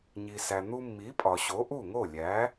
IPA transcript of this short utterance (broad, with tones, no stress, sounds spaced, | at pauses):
ɲ i˩ s æ˩ n̪ u˧ mː i˩˥ pʼ ɒ˩ ɕ o˩˥ ʔ u˥˩ ŋ o˥˩ lʲ æ˩˥